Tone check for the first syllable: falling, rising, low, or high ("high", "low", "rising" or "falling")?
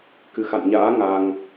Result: low